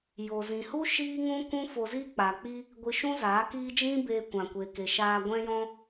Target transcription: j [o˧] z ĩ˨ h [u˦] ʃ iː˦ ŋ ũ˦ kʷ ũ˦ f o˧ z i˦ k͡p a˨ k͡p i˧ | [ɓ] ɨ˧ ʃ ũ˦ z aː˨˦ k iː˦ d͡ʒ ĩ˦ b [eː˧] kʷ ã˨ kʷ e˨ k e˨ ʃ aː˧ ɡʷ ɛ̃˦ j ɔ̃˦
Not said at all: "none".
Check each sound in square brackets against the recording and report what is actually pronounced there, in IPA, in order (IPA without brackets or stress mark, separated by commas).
o˨, u˦, ɡʷ, eː˧